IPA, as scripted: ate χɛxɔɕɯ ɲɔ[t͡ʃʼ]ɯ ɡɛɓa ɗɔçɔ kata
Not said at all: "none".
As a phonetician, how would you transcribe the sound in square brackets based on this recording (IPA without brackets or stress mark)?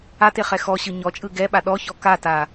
t͡ʃʼ